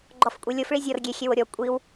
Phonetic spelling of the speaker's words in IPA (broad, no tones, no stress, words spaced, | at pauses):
ɡ͡ǃɔfkʷʼilʲofɭi zʲɔr ɡʲexʲe woɾʲɔ kʷʼiw